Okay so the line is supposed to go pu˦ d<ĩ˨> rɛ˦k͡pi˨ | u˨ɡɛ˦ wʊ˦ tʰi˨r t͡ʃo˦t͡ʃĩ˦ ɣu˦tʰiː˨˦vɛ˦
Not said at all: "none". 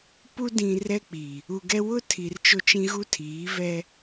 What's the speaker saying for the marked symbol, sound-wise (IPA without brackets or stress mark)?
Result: ĩ˨